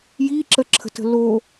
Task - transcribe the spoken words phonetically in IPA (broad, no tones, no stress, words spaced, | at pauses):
jiǁəǁʰə̤tə̤ lo